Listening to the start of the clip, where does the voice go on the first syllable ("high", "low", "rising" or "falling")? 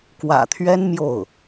low